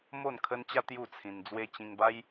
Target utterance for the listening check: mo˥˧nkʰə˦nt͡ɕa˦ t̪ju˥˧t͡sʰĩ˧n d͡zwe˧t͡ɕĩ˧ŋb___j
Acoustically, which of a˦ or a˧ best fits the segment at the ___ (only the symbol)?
a˦